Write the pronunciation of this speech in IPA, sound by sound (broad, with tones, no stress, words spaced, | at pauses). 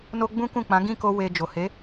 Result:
no˦ ɡ͡bũ˦kũ˦˨k͡pã˨˦ ɡĩ˦˨ko˧ we˧ d͡ʒo˨he˨˦